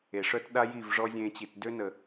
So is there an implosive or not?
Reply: yes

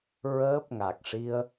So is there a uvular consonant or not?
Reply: no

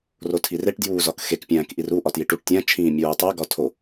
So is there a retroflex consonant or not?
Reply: yes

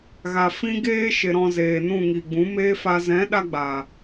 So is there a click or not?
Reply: no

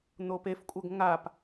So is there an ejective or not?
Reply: yes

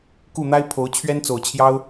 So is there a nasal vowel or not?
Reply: no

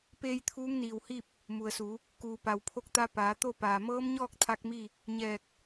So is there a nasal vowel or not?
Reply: no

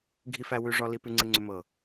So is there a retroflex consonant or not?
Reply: yes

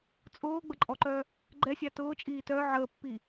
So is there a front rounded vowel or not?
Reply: yes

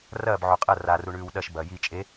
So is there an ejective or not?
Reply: yes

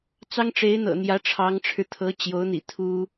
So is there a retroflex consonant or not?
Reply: yes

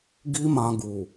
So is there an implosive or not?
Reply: no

